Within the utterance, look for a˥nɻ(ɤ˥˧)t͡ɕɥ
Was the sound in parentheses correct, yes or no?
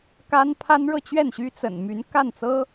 yes